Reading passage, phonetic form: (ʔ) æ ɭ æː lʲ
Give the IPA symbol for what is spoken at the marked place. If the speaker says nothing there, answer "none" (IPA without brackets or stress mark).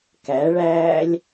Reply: k